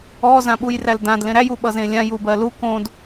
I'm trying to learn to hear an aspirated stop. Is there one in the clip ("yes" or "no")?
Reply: no